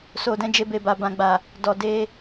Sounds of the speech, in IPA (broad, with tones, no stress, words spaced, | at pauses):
so˨dɛ̃˧ d͡ʒe˧be˨ba˨ bã˨ɡ͡ba˨ | dɔ˨de˧